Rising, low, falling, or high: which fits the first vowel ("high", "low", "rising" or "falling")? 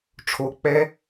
rising